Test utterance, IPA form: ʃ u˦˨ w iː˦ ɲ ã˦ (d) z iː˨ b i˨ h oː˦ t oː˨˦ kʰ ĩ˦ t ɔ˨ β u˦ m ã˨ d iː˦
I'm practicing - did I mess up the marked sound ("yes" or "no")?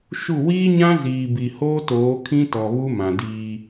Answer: yes